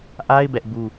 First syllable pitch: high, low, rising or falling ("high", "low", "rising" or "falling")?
high